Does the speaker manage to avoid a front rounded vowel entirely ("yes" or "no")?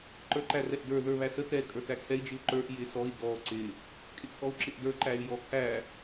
no